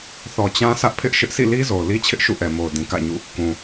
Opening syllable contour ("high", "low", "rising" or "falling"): low